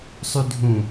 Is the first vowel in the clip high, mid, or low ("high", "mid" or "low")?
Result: high